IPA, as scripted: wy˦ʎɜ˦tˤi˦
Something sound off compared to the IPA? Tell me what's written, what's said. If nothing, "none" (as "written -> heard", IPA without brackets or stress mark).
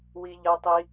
y˦ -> i˦